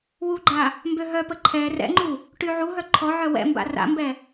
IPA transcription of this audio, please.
w u ɡ͡ǃ a | m b ø ɦ œ p ə ǃʰ ɛ r ɛ̰ ŋ͡ǃ u | ʈ y ʕ u ɦ œ ǃʰ ɔ ʕ œ w ɛ̰ m b a̰ r a̰ m b ɛ

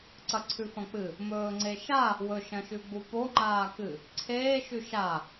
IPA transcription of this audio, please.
ǀ ɐ ǀʰ ʉ f ɐ̃ k͡p ɨ | m ɵː ŋ͡ǀ e ʃ a | w ɵ ʃ ɐ̃ ʃ ʉ ɡ͡b u p o ŋ͡ǃ aː k ɨ | ǀʰ eː ʃ ʉ ʃ a

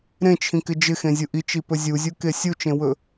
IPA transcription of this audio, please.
ɾ ẽ t͡ʃʰ ĩ k ɪ d͡ʒ ɪ x ẽ zʲ u ʔ i t͡ʃ i p ɵ zʲ u zʲ u k e sʲ u t͡ʃ ẽ w ɵ

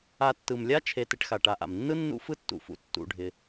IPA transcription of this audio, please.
a˨ tː ɯ˩ m lʲ a˦ t͡ʃʰ e˨ t ɪ˨ ʈ x a˩ ʈ a˨ ʔ a̰˩ m nː ɯ˥ nː ṵ˦ f ɯ˦ tː ṵ˩ f ṵ˨ tː ṵ˨ ɖʱ ɪ˨

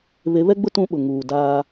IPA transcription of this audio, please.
β e˨˦ β ɛ˦ ɡ͡b ʊ˦ t ũ˦ ɓ ʊ˨ ŋ uː˨ d aː˦

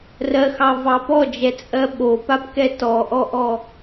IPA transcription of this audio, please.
r ɜ x ɑ v ɑ p ɔ d͡ʒ ɛ t͡sʼ ɜ ɓ o p a p k ɛ t ɔ ʔ ɔ ʔ ɔ

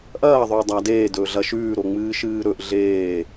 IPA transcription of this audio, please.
ʔ ɐː ðˤ ɵː dˤ a d eː d ɵː ɮ ɐ ʃ ʉː ɾ o ŋ͡m ɨː ʃ ɨː ɾ ɵ ʔ ɮ eː

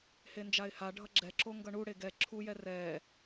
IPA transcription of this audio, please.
h e n d͡ʒ a ɪ̯ h a ɖʱ ʌ ɡ͡ǁ ɛ ǁ o ŋ ɡ ʌ ɳ u ɽ e ɡ ɛ ǁʰ u j ɛ r ɛː

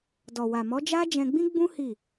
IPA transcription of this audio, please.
d ɔ˨ w a˨ m ɔ˨˦ d͡ʒ a˦ d͡ʒ ɛ̃˧ ɡ͡b ĩ˦ ɡ͡b ũ˦ h i˦˨

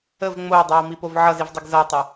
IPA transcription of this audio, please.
ə v ŋ͡m o w dˤ ɜ w m i p o v ʕ ʌ z i v dˤ i ɡ z ʌ w tˤ a

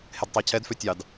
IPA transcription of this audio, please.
h e d tˤ ɑ cʰ ɛ d f ø tʲ ɑ d

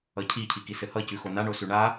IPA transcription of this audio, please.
ʌ cʰ i cʰ i k i s ɘ h ʌ c ʉ x o n a ɳ o s ʉ ɳ a

